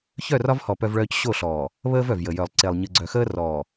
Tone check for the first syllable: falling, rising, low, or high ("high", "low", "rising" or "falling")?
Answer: falling